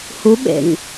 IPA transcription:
h u ɓ ḛ ŋ

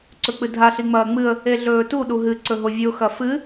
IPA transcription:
ǀ ɵ k͡p ɨ dʱ a ɬ i ŋ͡m ɐː ŋ͡m ɨ ə̯ | e ɮ ɵː t u ɗ u ɦ ɨ ǀ ɵ ɦ o vʲ ʉ ʊ̯ x ɐ f ɨ

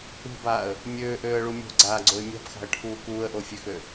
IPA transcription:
ṳ b aː ə̯ | mʲ øː ʔ øː ə̯ ɭ u mʲ o̤ ɡ͡ǀ aː ɡ͡ǀ o ɪ̯ mʲ a̤ p x a̤ ə̯ ʈʰ uː k uː ə̯ ʔ o fʲ ø x ø

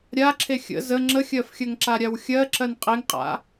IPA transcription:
ɾʲ a ǁʰ e xʲ ə̰ z ə ŋ͡ǁ ə xʲ ɜ f xʲ ɜ ŋ ǁ a ɾʲ a w xʲ ɜ ǁ ɜ n qʼ e ŋ qʼ a̰

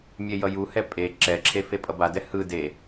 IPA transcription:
mʲ e j ʌ j u h ɛ pʼ e ǁ ɛ ǁʰ e f e pʼ ʌ b a d ɛ h ɯ d e

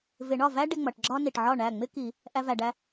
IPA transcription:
v ɪ˨˩˦ ɳ ɒ˥˩ v æ˥ ɖ ɪ˧ ŋ͡m ʌ˩ ʈ ɡ͡ǁ ɒ˥ n i˩ ʈ ʕ ɒ˥˩ ɳ æ˥˩ ŋ͡m ɪ˥ k i˨˩˦ | ʔ æ˧ v æ˩ ɖ æ˧

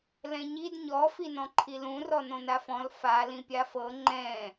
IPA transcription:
l ɛ̃ ɲ i d ɲ ɔ f i n ɔ̃ ǃʰ i l ũ r ɔ n õ n a f ɔ̃ l f a l ĩ pʲ a f ɤ ŋ͡ǃ ɛ̃

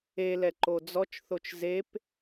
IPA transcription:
e l ɛ ǃ o d͡z ɔ t͡ʃ θ o t͡ʃ z e p

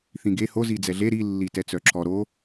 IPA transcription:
θ ĩ ɡ e h o z i d͡z ɛ ɮ e ɾ i lː i t ɛ t͡s œ ǁ ɔ ɾ o

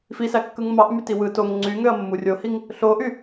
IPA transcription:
f i s æ kː ɯ ŋ m ɑ ʔ m y t i w ɯ t o ŋ ŋ͡ǀ y ŋ ø ɐ̯ mː u rʲ o h i ŋ | ɬ o ʔ y

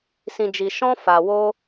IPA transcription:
s ĩ˧ d͡ʒ i˧ ʃ ɔ̃˦ f a˧ w o˦

